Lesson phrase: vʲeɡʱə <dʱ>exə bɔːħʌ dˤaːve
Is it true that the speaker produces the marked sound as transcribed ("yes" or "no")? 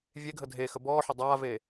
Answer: yes